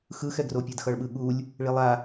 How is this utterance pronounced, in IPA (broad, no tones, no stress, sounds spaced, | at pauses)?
x ɯ x ɛ ɡ r o pʲ ɛ d x ʌ ɭ ɓ ɯ ɠ u lʲ | ɭ i lˠ a